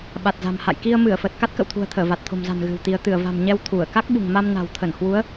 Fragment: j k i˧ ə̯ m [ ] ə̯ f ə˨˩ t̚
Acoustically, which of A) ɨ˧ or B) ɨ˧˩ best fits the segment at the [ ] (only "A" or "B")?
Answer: B